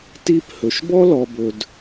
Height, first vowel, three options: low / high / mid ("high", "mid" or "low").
high